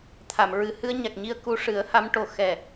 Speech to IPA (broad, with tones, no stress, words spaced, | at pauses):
t̪ʰa˨˩˨mɹɨ˨˩ hɨ˧ə̯ɲa˨˩k̚ɲi˧ə̯ ku˧ʂɨ˨˩˦ə̯ha˧˥mʈo˨˩ xɛ˨˩